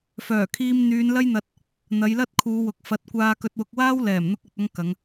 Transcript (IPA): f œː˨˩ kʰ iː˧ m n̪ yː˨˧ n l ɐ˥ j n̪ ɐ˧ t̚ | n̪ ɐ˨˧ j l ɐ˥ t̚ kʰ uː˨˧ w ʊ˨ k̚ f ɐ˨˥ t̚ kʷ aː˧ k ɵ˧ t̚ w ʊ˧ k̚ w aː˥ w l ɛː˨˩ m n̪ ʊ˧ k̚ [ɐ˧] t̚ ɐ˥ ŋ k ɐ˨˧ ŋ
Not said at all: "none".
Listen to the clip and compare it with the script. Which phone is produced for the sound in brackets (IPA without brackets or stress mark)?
ɐ˨